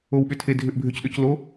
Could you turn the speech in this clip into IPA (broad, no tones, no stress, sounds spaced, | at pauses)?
o w ɓ ʏ tʰ e dʱ ʏ ʔ bʱ ʏ c ɗ ɵ c l o